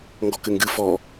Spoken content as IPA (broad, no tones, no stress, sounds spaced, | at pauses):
ŋ ɡ ɔ k ɘ ŋ ɡ ɨ f ɔ